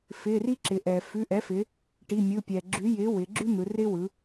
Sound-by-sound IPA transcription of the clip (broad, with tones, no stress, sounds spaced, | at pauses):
f ɪː˩˧˩ r i˦ ǁ ɪː˩ ʔ ɛː˩ f ʉ˩˧˩ ʔ ɛ˩˥ f ɪ˩˧ | ʈ i˩˧˩ mʲ ɯ˩˧˩ pʲ ɛː˩ ɡ͡ǁ ʉ˩˥ j ɪː˩˥ w ɪː˩˧ ɡ͡ǁ ʉ˦ n̪ ɯ˩˧ r ɪː˦ w ɯ˩˧